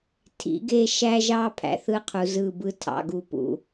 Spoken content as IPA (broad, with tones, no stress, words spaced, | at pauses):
tʰḭ˨˦ɡe˦ ʃæ˦ʒɑ˦ pʰæ̰˨θɯ˦qʰu˨zɯ˦˨ bɯ˦tʰɑ̰˨ɡu˨pṵ˨